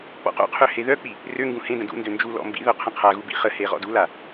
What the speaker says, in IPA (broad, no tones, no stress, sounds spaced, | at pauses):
k͡p ɔ̰ q o̰ qʰ ø h e ð œ k͡p i | r ø ŋ ɡ ũ h ẽ d ə̃ d ṵ n d ø n d͡ʒ u l ɔ̰ m b ḭ ð œ qʰ ə̃ qʰ a ɣ u b ḭ χ ə h e ʁ ɔ̰ d u l a